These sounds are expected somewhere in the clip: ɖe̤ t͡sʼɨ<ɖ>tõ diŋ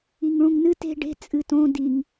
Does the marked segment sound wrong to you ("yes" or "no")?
yes